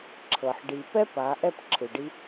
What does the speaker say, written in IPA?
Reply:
ǁʰ ɤ˨ ħ ɖ i˨ p ɛ˦ p a˨˦ ʔ ɛ˦ p ǁʰ ɯ˨ ɖ i˦

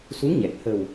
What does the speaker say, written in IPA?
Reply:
s u˧˥ ŋ ɲ ɛ˨˩ k̚ h ə˨˩ w

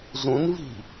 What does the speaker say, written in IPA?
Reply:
z ũ n v i̤

